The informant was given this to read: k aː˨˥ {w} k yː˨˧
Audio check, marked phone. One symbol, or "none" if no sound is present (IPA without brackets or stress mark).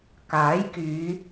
j